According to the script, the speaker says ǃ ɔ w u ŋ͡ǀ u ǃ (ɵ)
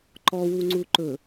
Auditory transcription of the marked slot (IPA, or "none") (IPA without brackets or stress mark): ɵ